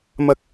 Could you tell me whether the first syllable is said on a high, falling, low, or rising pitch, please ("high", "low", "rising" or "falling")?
rising